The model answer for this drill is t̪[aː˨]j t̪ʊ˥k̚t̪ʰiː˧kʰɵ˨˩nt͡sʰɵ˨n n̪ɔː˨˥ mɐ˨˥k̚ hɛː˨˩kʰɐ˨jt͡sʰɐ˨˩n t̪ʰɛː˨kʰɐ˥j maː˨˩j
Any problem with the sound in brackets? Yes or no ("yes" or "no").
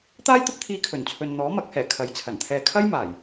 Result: yes